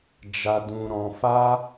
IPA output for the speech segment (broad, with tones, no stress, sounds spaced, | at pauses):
d͡ʒ a˧ d ũ˧ ɾ ɔ̃˧ f a˦